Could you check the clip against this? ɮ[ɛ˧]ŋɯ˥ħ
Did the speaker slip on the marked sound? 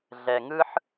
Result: no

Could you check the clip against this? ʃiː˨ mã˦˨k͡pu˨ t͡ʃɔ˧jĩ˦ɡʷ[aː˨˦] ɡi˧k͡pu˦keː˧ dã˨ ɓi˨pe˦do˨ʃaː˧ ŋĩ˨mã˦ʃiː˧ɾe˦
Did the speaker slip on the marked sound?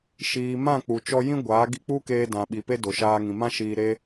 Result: no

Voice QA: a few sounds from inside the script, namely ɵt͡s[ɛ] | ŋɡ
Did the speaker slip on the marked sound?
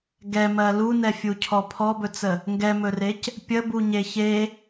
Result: yes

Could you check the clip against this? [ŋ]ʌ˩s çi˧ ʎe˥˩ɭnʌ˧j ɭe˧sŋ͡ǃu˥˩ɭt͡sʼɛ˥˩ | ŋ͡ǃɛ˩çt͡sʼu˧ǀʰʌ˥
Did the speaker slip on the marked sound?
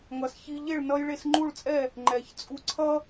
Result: no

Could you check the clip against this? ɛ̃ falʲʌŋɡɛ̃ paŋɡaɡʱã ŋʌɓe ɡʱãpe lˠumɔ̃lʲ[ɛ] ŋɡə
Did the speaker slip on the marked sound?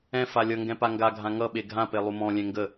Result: yes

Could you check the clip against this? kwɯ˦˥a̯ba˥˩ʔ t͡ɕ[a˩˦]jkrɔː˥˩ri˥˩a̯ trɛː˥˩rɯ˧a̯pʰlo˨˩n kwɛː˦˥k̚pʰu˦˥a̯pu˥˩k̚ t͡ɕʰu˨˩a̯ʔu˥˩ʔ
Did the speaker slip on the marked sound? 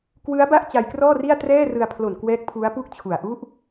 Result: yes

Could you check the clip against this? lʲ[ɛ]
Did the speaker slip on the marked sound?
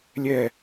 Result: no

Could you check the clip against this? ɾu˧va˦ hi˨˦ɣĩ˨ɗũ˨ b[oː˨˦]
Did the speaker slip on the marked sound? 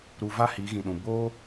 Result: yes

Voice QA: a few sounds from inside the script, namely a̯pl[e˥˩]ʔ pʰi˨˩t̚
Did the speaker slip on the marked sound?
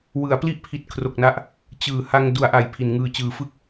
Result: yes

